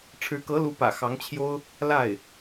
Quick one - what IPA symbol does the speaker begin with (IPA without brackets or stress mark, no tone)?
ʈ͡ʂʰ